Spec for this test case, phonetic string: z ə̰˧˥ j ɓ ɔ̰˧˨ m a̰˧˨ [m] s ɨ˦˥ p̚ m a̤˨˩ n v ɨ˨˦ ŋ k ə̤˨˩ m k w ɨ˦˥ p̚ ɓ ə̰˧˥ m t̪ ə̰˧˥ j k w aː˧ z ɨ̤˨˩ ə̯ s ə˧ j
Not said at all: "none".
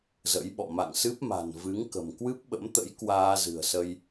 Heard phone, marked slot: ŋ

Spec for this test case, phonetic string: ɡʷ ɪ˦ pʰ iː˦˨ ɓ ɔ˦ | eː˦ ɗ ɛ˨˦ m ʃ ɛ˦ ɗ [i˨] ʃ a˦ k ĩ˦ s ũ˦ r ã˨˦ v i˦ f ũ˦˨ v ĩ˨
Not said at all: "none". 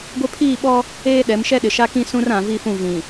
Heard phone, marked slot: ɪ˨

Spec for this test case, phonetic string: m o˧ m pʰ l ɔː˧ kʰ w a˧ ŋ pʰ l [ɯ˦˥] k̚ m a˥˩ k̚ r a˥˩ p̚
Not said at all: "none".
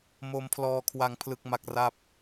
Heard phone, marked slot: ɯ˦˥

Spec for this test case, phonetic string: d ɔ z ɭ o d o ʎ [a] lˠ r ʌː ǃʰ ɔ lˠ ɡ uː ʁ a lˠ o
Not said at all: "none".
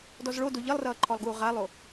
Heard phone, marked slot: ʌ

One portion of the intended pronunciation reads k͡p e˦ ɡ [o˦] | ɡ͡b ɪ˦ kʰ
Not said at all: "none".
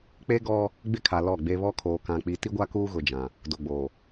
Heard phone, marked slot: ɔ˦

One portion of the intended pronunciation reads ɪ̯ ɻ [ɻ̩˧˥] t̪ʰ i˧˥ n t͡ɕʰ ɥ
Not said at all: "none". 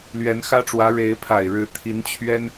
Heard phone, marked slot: ɻ̩˧˥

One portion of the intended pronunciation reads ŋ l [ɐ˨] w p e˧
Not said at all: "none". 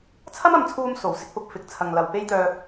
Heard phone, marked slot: ɐ˨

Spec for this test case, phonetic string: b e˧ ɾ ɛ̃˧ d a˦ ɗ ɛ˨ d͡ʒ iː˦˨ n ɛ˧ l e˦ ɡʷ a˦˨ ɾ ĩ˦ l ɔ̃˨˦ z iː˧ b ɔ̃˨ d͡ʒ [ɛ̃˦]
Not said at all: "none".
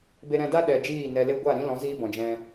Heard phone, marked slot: ɛ̃˧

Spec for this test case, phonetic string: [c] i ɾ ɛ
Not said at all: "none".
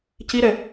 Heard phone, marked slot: c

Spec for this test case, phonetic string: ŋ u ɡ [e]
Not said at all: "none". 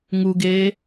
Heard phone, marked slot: eː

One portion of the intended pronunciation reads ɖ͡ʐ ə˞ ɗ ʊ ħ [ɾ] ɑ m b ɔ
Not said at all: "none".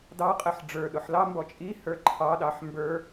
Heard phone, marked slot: l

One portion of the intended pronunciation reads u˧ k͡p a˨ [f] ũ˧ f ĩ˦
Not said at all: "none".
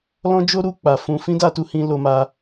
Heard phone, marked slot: f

